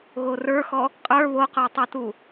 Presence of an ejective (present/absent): present